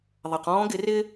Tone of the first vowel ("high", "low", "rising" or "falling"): low